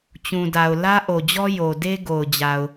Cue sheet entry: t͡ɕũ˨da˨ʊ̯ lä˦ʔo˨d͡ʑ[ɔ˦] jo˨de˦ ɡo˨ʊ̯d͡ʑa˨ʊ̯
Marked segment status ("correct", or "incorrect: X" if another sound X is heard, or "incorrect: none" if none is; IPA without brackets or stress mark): correct